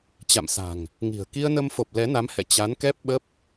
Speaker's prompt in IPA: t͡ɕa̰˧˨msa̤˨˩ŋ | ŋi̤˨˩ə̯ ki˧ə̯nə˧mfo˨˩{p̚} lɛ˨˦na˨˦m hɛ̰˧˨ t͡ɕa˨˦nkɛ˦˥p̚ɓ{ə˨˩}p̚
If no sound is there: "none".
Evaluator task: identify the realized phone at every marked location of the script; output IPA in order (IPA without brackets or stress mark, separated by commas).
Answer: p̚, ə˦˥